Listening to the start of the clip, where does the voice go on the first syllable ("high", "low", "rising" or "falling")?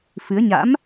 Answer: rising